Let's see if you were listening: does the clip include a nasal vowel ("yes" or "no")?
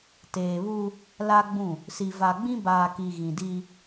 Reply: yes